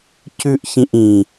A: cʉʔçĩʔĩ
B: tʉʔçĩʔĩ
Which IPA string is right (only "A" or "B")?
A